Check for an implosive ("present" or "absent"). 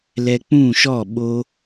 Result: present